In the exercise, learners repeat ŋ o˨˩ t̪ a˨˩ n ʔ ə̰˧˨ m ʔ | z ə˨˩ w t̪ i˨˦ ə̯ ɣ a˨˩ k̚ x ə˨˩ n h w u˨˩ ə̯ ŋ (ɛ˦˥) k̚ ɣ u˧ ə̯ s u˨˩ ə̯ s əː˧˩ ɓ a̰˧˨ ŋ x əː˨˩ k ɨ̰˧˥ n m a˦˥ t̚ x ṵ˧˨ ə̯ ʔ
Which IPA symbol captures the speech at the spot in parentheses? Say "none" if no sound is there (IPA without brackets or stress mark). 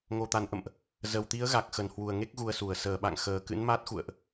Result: e˦˥